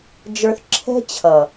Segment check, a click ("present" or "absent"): present